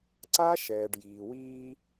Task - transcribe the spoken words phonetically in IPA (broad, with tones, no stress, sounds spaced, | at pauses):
ǀ a˦ ʃ ɛː˨ ɖ j iː˨ w iː˦